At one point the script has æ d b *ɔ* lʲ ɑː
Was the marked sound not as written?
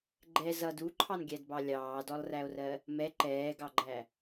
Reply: yes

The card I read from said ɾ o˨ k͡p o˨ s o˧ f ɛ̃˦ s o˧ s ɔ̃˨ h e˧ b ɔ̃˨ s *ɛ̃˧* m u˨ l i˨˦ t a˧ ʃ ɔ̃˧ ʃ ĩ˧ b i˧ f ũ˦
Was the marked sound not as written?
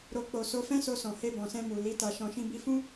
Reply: no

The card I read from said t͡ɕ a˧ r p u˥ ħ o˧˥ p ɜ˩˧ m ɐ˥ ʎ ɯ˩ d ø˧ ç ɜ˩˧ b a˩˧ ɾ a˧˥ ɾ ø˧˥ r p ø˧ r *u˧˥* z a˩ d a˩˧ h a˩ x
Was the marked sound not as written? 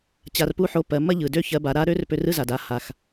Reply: yes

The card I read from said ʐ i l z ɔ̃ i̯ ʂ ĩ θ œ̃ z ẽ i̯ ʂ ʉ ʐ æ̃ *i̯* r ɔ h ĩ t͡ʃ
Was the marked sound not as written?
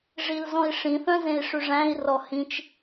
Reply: no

